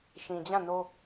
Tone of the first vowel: low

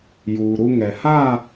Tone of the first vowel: low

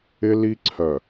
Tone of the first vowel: high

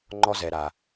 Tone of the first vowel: high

